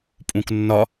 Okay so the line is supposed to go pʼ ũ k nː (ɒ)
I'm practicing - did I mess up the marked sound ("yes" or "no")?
no